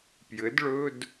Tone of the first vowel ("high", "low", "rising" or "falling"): rising